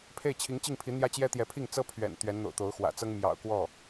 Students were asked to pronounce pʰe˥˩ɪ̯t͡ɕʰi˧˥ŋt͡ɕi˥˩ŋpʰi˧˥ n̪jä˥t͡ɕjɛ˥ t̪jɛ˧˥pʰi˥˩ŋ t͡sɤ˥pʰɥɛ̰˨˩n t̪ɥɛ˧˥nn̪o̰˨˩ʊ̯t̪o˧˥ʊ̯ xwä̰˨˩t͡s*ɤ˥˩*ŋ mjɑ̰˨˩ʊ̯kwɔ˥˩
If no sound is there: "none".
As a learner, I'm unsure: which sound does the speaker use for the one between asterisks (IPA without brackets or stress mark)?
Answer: ɤ˥